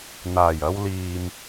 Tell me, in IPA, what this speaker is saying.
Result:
n̪ aː˨˩ j ɐ˧ w l iː˨ m

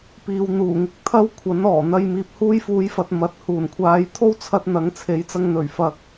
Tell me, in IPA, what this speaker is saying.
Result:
p iː˨ w n̪ uː˨˩ ŋ ɪ˧ k̚ t̪ʰ ɐ˥ w kʷʰ ɐ˨˥ n ɔː˨˩ n̪ ɐ˧ j m iː˨ p̚ h uː˧ j f uː˨˧ j f ɐ˨ t̚ m ɐ˨ t̚ h uː˨˩ n kʷʰ aː˨˧ j t̪ʰ o˥ w t͡sʰ ɐ˧ t̚ n̪ ɐ˨˥ ŋ t͡sʰ e˨˥ j t͡s ɐ˧ ŋ n̪ ɵ˨˩ ɥ f ɐ˨ k̚

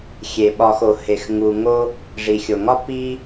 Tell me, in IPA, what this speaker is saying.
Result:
xʲ e˩ ɓ ɒ˨ x o˩ h e˩ x ŋ u˩ ŋ o˦ | ʐ i˩ xʲ o˩ ŋ ɒ˥ p i˦

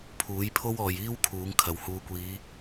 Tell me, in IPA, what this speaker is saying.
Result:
pʰ uː˨˥ j pʰ o˥ w ɔː˨ j iː˥ w kʰ uː˨˥ ŋ kʰ ɐ˨ w h uː˧ kʷ iː˨˧

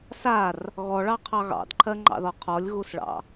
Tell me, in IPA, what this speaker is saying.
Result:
s a r | ɣ ɔ ɭ ɑ qʰ ɑ ɣ ɑ̰ d ǃʰ ɜ ŋ͡ǃ ɑ̰ ð ɔ qʰ ɔ lʲ ɣ u s ɭ ɑ̰

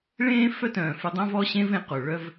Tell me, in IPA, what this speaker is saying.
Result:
ɭ ẽː˥ f œ˥ t œ̃ː˩ f y˧ dˤ ã˥ v ɔ˥ ɕ ẽ˥ v ẽ˧ q o˩ ɭ œ˥ v

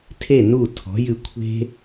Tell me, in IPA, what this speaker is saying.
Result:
tʰ e˦˨ n u˦˨ tʰ ɔ̤˨˦ j ɨ˧ kʷʰ e̤˦

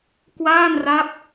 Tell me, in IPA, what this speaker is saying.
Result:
k w aː˥˩ n r a˦˥ p̚

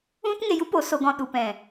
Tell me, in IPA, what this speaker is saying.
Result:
ũ˦ t ŋ e˧ j u˦ p o˨˦ s o˧ ɡ ɔ̃˧ ɗ u˨ p ɛ̃˨

